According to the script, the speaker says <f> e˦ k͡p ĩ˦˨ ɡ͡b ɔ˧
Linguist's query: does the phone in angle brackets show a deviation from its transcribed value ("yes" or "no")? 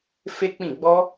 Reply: no